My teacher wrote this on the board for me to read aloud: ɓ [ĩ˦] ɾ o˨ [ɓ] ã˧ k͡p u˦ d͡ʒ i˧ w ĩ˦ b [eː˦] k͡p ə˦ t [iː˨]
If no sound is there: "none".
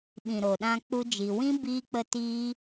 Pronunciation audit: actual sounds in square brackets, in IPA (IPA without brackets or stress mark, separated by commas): ĩ˨, ɗ, iː˦, iː˦